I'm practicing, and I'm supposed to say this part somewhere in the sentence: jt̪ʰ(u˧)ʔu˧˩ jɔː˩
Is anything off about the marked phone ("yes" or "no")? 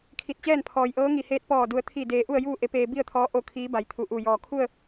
yes